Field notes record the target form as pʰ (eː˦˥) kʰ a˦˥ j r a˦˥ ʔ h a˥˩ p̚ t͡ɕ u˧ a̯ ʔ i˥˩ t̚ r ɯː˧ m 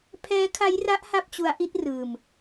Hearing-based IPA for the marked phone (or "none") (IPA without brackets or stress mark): ɛː˦˥